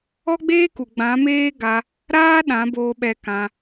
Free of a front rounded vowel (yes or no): yes